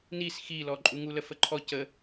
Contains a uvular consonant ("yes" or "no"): no